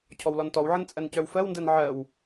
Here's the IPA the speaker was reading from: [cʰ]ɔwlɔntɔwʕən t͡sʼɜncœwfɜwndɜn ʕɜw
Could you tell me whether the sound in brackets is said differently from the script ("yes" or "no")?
no